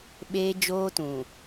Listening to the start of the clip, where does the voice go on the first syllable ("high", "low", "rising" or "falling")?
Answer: high